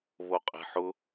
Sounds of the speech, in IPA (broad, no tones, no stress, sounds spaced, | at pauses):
β o qʼ e̤ ħ ʊ